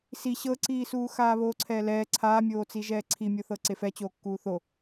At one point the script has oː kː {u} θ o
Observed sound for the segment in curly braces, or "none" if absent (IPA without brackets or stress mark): uː